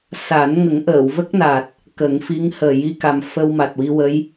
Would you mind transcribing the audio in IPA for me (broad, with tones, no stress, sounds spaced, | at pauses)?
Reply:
s a˨˩˦ n ŋ ə˨˩˦ ŋ ʔ əː˨˩˨ w v ə˦˥ k̚ n a˨˩ t̚ | k ə˨˩˦ ŋ f i˧˥ ŋ h əː˨˩ j i˧ k a˨˩ m f ə˧ w m a˨˩ t̚ w i˧ w ə˧˥ j